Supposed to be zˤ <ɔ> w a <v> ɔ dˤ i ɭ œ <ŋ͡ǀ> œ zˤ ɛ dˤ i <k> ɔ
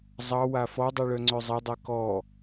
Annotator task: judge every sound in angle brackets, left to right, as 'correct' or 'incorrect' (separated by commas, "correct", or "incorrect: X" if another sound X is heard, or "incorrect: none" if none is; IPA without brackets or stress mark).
incorrect: ɑ, incorrect: f, correct, correct